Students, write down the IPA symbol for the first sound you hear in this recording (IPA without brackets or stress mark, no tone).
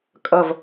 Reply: kʼ